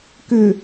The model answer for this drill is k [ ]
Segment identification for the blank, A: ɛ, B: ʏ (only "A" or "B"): B